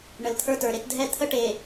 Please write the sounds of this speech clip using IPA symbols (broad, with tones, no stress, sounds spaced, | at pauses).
ɳ ə˨ l t̪ʰ ə˞˦ t ə˞˨ ɾ e˦ t dʱ ɛ˦ t̪ʰ ə˦ ʈ e˨